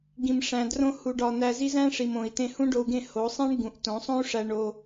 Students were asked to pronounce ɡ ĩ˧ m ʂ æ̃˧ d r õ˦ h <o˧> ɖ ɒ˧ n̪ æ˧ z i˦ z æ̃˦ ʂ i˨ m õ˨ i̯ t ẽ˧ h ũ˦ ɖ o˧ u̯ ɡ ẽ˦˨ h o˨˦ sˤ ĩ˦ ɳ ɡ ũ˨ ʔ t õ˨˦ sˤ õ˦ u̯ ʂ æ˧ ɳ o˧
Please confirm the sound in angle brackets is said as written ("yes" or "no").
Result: no